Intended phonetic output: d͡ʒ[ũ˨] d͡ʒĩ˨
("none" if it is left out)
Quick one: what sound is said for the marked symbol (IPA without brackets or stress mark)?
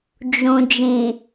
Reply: ũ˨